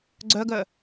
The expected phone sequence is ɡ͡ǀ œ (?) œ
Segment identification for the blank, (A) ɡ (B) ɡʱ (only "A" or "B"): A